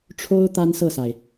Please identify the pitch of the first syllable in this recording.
high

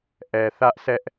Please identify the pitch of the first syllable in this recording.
low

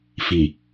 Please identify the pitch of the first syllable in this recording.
low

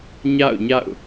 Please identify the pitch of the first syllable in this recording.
falling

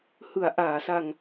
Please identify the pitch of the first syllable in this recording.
low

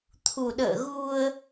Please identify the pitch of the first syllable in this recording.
low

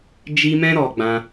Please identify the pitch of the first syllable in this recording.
high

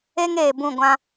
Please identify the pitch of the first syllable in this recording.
high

